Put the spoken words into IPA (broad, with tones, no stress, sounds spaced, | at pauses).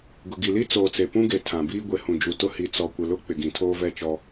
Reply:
ɡ ʊ˨ ɡ i˨ l i˦ t͡s oː˨ t͡s e˨ p ũ˦ ɡ e˨ tʰ ã˨ b iː˦ ɡʷ e˨ h ũ˨ d͡ʒ u˨ t ʊ˦ h i˨ t͡s ɔ˨ kʷ ɪ˨ l ʊ˦ k͡p ɪ˨ ɡ ĩ˨ tʰ oː˦ v ɛ˦˨ t͡ʃ ɔ˦